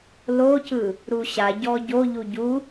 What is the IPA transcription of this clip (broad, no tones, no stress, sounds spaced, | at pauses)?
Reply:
l o c ɯ | ɾ u ɕ a ɟ ɔ ɟ o ʎ u ɟ u